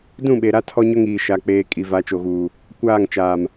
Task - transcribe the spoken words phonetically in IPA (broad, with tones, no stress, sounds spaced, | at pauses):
d ũ˦˨ ɓ e˨ ɾ a˦ tʰ ɔ˦ ɲ ʊ˦ ŋ iː˨ ʃ a˨ k͡p eː˨ kʼ i˨ v a˨˦ t͡ʃ o˨ ɣ uː˨ | kʷ aː˦˨ ŋ t͡ʃ aː˨ m